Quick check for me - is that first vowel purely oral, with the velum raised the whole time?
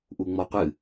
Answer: yes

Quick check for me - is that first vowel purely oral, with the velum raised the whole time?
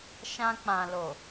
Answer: no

